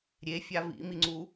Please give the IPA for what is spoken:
ɾʲ e fʲ a v ḭ m i ŋ͡ǀ u

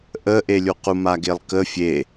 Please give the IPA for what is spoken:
ʔ ə ʔ e lʲ u q u m a ɡ e lˠ k ə fʲ e

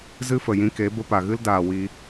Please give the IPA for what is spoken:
z ɨ˦ f ə˨ j ĩ˧ k e˨˦ b ə˧ p a˨ ɣ ɨ˦ l d aː˨ w i˧

